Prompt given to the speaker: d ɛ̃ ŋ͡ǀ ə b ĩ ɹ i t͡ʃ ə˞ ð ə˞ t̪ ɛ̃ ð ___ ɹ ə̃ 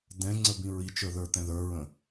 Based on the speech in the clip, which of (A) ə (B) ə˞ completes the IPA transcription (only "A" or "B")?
B